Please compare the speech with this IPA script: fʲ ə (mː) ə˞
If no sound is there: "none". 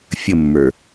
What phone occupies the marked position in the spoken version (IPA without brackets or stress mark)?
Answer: mː